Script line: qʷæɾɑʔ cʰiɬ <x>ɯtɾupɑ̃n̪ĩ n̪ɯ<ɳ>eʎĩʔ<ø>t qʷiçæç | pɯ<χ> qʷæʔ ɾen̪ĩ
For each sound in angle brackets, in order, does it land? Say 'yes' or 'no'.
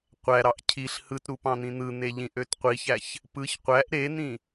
no, no, yes, no

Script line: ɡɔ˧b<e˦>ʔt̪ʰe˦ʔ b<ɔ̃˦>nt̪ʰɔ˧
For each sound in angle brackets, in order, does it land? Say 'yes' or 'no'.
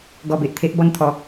no, no

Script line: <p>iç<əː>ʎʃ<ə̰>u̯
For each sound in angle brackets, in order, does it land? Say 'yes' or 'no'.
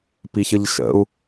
yes, no, yes

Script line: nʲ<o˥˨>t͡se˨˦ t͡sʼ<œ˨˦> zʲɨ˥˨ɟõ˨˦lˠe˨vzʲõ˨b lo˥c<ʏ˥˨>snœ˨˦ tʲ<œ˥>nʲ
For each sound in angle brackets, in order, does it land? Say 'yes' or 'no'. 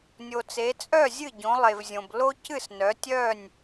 no, no, no, no

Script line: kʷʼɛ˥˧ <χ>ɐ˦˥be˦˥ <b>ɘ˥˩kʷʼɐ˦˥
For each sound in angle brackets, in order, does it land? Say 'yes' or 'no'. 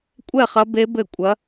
yes, yes

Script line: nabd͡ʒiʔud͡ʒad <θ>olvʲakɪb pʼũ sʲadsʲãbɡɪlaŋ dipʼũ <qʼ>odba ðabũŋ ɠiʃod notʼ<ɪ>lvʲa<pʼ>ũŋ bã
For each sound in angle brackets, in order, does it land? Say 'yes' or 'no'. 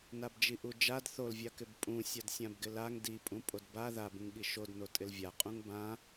yes, no, yes, no

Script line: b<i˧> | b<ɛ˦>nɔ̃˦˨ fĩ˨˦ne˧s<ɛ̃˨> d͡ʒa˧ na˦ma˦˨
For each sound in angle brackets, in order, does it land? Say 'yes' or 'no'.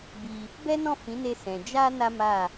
yes, yes, yes

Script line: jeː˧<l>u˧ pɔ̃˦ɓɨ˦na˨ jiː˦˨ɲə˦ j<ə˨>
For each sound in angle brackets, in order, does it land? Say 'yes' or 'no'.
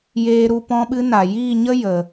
no, yes

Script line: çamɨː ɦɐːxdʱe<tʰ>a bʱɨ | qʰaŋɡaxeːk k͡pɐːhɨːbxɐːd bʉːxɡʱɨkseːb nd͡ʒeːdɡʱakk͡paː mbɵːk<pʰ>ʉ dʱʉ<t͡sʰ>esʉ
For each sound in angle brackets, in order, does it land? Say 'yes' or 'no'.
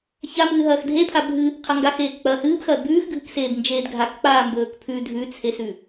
no, yes, yes

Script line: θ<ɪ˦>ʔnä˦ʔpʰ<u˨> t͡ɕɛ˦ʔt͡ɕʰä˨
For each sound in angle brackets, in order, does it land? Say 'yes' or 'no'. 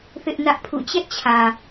yes, no

